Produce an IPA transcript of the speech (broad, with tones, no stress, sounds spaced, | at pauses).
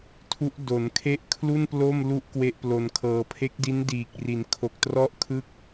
tʰ u˦˥ ʔ d o˩˦ n kʰ e˦˥ ʔ kʰ l u˥˩ n p l o˥˩ m l u˦˥ ʔ k w e˥˩ ʔ p l o˧ n kʰ ɤː˧ pʰ e˦˥ k̚ d i˦˥ n d iː˨˩ k̚ r i˩˦ n kʰ o˨˩ k̚ t r ɔ˥˩ ʔ kʰ ɯ˥˩ k̚